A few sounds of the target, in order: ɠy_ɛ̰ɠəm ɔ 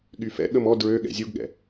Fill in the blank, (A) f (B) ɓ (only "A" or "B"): A